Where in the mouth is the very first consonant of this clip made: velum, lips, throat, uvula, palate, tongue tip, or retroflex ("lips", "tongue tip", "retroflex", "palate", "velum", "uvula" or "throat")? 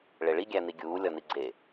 retroflex